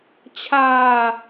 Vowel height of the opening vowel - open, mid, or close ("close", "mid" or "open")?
open